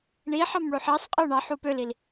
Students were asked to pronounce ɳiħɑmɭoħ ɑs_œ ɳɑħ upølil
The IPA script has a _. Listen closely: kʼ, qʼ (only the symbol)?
qʼ